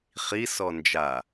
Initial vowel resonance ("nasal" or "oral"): oral